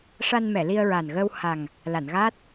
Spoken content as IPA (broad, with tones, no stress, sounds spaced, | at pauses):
ʂ a˧ n m ɛ˨˩˨ l i˧ ə̯ ɹ a˨˩ n ɣ əː˧ w h a˨˩ ŋ | l a˨˩˨ n ɣ aː˦˥ t̚